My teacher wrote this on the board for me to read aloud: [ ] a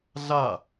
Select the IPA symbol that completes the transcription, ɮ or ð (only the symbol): ɮ